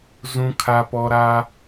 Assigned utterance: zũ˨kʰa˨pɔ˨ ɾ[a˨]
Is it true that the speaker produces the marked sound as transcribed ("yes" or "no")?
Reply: no